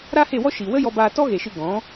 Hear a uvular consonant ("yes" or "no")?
no